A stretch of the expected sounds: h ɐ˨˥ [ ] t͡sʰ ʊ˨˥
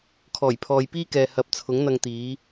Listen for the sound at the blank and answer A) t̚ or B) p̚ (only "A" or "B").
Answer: B